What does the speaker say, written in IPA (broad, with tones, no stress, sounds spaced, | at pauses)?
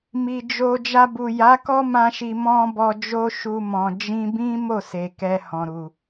m i˨ d͡ʒ o˧ d͡ʒ a˧ b u˨ j a˨˦ k ɔ˦ m ã˧ ʃ i˨ m ɔ̃˧ b ɔ˧ d͡ʒ o˦ ʃ u˧ m ɔ̃˨ d͡ʒ ĩ˧ b ĩ˦ m o˦˨ s e˨ k ɛ˧ h ɔ̃˨ ɾ u˨